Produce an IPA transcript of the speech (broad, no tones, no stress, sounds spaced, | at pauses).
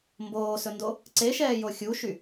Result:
m b oː s ɵ n d o | ǀ e ʃ ɛː j o xʲ u ʃ y